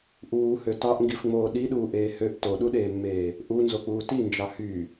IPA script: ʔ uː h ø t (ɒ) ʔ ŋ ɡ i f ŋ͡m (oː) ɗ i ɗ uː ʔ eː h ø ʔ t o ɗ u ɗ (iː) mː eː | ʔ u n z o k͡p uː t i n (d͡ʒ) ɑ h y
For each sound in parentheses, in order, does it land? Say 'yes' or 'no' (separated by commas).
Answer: no, yes, no, yes